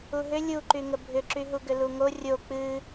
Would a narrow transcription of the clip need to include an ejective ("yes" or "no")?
no